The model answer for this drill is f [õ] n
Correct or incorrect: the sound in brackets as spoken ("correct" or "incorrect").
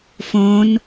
correct